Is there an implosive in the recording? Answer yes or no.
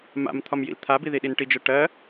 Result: yes